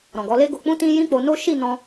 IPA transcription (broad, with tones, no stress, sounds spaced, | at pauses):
ɾ ɔ̃˨ ɡ ɔ˨˦ l e˦ ɡ o˧ k͡p ũ˦ t ĩ˦ j ĩ˦ k͡p o˧ n o˦ ʃ i˦˨ n ɔ̃˧